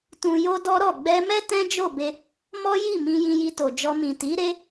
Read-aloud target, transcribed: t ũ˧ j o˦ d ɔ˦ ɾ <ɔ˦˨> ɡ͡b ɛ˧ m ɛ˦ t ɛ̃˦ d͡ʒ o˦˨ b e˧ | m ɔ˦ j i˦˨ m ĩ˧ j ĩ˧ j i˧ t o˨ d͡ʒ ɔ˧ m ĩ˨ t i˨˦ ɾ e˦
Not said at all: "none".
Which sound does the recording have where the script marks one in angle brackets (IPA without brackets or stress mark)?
ɔ˦˨